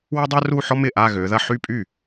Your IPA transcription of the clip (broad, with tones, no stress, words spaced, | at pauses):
wʏ˥dˤœ˥ru˥˧ ħɔ˥mɪ˥˩ ʔa˥˧ɣø˩˧ðɐ˥˧ ħy˥˧pʼy˥˩